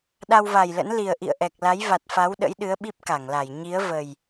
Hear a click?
no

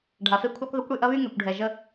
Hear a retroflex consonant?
yes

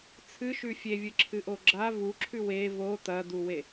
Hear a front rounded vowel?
no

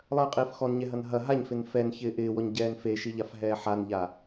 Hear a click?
no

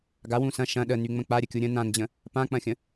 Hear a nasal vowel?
yes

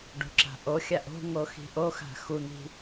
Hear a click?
yes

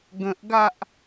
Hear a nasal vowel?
yes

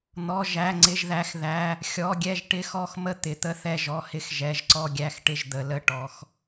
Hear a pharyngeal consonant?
no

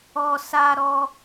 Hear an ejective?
no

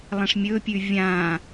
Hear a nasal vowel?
yes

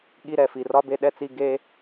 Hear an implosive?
yes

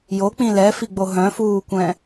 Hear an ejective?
no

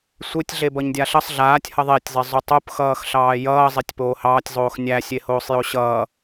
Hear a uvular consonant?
no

